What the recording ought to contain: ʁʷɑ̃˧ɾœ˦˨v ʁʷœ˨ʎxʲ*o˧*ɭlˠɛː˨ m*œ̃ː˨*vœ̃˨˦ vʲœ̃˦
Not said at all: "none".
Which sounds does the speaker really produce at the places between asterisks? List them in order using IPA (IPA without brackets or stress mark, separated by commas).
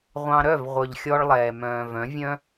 ɔ˧, œ̃ː˨